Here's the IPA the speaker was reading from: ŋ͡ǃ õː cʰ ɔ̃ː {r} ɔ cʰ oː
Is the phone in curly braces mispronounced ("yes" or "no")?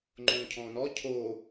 yes